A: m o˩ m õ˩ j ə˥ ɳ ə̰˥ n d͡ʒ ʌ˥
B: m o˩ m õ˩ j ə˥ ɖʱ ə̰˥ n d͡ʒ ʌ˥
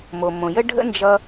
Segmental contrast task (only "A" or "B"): B